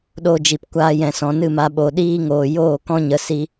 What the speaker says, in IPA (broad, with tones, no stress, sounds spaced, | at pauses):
ɗ o˧ d͡ʒ i˨ p kʷ aː˧ j ɛ̃˨ s ɔ̃˨ n ɨ˦˨ m a˧ ɓ o˨ ɗ iː˦ ŋ oː˨ j oː˦˨ k ɔ̃˦ ɲ ə˧ s i˦